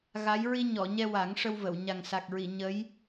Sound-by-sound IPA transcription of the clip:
ɣa˧˥j ɹi˧ɲɔ˨˩˨ɲɛ˧ wa˨˩˦ŋʂə˧wvə˨˩˨w ɲa˨˩ŋsa˨˩k̚ɹi˨˩˨ ɲə˧˥j

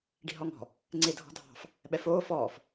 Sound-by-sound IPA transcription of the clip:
ɖi̤ɦɔŋɔ̤ | ŋ͡ǀedʱɔ̤dʱɑ̤f | ɓɛfoː fɔːf

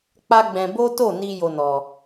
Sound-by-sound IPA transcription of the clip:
k͡pa˦ɡ͡bɛ̃˧ bo˦to˦˨ ni˧ jo˧nɔ˨

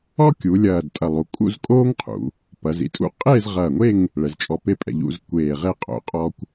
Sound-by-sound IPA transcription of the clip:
ɔ˥kʲu˩˧ lʲɐː˧˩dtʼɐ˧˩lˠu˩˧ kʼṵ˥˧zkʼoː˥ŋqʰṵ˩˧ | pɐ˩˧zḭ˧tʼṵ˥ qʼeː˥˧zʁɐː˧˩ŋʷe˥˧ŋ | ɭɛ˩˧zt͡ʃʼɔ˧pe˥ pʼɛ̰˩˧ʎ ṵ˥˧zkʷeː˧˩ʁe˥˧qʼo̰˩˧ qʼɔ˥kʷ

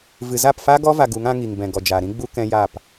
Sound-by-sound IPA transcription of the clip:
vɨ˨za˦˨pfa˦ɡɔ˦ va˧ɡu˨˦ŋ ã˦ŋi˨ŋ bɛ̃˨ɡɔ˨d͡ʒaː˨ ɾĩ˦ɡ͡bu˦ kɛ̃˦jaː˦˨p

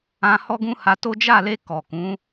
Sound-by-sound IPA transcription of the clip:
ã˧ hɔ˦ɡũ˦ha˧to˦ d͡ʒa˦˨le˧ kɔ˨kũ˨˦

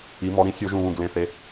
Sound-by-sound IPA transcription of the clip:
i˩˧mɔ˩˧ɾĩ˩˧ sʲo˧˩˧ʒũ˨˩βũ˨˩ ɡlẽ˩˧θe˩˧

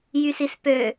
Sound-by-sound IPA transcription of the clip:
jysispø

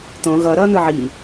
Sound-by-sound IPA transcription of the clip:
t̪õ ɣʌːɾʌːn̪ɯ ʕiː

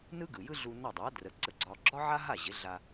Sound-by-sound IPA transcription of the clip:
nɯ˥ɡɯ˩jɯ˥ ɮu˧ nɒ˥˩ dˤa˩˥ drə˩˥ǀə˧ɡ͡ǀɒ˧ ɡ͡ǁɒ˥ʕa˥ɦa˥˩ ʑɪ˩˥ɮa˧

